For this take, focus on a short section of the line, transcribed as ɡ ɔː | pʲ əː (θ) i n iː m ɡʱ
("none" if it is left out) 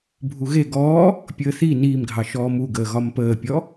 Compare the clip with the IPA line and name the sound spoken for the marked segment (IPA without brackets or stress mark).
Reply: θ